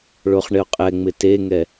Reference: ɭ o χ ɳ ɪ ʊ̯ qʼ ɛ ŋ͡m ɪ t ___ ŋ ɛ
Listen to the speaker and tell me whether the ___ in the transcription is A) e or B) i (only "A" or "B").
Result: A